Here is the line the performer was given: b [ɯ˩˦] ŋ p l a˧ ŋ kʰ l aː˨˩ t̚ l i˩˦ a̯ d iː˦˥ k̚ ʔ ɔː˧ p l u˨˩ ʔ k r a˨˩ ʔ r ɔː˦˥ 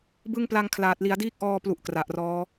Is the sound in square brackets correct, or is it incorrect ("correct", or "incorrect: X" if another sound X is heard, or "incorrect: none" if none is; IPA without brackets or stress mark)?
incorrect: ɯ˦˥